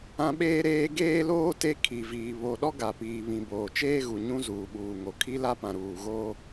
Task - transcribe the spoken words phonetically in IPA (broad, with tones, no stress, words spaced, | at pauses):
ã˦ ɓeː˦ ɾeː˦ ɡeː˦loː˦ te˦ kʰi˨viː˨ βo˨ɗɔ˦ɡa˨ piː˨βĩ˨ boː˨t͡ʃeː˦ ɣu˨ɲũ˦ zuː˨ɓuː˨ŋo˨ kʰi˦la˦pã˨ ɾuː˨ɣoː˦